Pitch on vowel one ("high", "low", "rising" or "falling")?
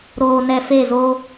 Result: low